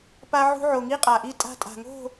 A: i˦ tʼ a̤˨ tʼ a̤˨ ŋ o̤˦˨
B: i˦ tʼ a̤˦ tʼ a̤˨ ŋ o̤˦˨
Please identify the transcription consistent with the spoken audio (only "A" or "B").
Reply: B